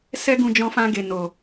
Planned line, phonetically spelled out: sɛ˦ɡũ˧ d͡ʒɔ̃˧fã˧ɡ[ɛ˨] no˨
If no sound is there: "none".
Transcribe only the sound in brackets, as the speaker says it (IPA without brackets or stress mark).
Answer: e˨